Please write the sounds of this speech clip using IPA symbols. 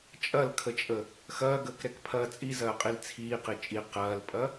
t͡ʃʼ ɐ l kʰ ə t͡ʃʼ ə | x ɐː ɡ əː k ɾ ɛ k pʰ ɐː t͡sʼ i z ɐː qʼ i l t͡sʰ iː q i t͡ʃʼ i q ɐː l pʼ ɐ

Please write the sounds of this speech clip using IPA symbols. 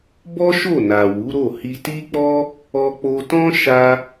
b ɔ˦ ʃ o˦˨ n a˨ w u˨˦ ɾ o˦˨ h i˧ t i˦ k͡p ɔ˦ | ɔ˧ k͡p o˧ t ɔ̃˦ ʃ a˧

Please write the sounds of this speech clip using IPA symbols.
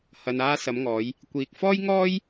h ɐ˨ n aː˧ s ɐ˨˧ m ŋ ɔː˨˧ j | kʷ iː˨ k̚ f ɔː˥ j ŋ ɔː˥ j

